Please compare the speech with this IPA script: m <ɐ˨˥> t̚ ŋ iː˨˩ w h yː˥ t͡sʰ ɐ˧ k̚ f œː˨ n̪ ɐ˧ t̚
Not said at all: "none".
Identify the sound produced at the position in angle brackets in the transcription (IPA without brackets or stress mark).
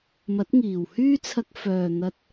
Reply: ɐ˨˥